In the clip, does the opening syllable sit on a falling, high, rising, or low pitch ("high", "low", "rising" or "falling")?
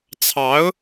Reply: rising